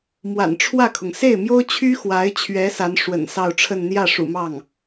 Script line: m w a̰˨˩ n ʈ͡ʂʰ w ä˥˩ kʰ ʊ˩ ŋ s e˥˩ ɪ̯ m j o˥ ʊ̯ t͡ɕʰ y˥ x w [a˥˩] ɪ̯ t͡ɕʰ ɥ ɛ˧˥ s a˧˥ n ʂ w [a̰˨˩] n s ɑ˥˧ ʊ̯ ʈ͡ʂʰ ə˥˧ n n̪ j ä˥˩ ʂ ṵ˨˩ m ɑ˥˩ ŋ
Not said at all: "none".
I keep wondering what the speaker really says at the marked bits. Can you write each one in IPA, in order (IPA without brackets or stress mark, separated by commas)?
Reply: a˧˥, ə̰˨˩